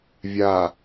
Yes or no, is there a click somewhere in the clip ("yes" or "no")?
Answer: no